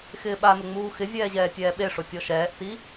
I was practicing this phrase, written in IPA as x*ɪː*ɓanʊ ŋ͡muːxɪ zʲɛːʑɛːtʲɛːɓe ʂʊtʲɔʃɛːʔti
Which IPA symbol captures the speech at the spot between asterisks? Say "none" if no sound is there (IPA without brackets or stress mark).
ɪː